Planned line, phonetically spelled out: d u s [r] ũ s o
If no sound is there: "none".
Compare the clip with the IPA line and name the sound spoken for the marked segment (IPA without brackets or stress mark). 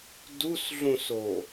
ɮ